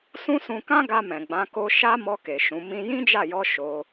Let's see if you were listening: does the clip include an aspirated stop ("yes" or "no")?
no